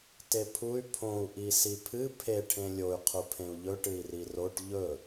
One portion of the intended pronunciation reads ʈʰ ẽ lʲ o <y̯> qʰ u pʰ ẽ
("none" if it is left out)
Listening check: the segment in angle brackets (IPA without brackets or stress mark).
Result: y̯